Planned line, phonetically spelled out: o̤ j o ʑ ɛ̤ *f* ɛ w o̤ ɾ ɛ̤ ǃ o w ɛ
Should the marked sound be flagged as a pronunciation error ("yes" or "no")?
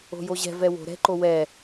yes